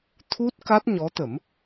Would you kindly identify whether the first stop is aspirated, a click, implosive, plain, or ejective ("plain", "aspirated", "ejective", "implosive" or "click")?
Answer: aspirated